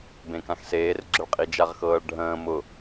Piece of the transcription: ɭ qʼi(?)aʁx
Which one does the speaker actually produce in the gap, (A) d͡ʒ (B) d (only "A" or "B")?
A